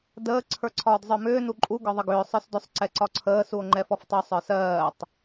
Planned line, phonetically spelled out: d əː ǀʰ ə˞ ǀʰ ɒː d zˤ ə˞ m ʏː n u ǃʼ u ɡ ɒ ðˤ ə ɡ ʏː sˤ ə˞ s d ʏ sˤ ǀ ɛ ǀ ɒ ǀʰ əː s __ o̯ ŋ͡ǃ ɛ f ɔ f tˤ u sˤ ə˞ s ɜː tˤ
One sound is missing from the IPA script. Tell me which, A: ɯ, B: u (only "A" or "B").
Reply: B